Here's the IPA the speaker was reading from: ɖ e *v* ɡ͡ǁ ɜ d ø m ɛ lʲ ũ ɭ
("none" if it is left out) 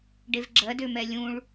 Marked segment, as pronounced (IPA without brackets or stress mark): v